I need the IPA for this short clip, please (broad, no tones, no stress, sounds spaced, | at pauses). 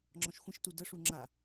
ŋ͡ǁ ɔ̃ ʃ xʷ ə̃ ʃ t u d ə ʂ u ŋ͡ǁ a